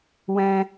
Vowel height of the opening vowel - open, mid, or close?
mid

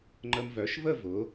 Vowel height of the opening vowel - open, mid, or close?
mid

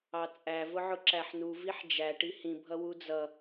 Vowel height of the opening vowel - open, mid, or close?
open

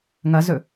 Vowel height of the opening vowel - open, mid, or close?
open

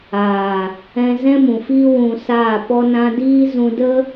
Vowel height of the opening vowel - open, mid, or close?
open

